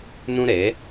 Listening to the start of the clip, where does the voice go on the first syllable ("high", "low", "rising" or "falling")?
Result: high